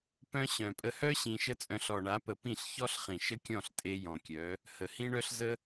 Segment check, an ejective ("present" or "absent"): present